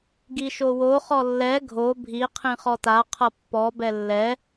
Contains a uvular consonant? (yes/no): yes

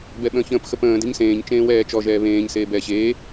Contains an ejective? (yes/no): no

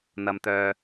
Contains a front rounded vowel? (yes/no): yes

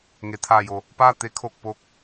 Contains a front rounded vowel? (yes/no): no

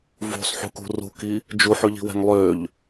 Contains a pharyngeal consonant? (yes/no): yes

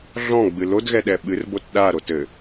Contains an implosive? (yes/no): yes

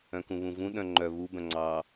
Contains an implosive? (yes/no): yes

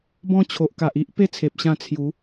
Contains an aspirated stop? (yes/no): yes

